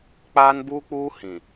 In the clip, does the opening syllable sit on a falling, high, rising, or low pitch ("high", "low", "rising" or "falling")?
high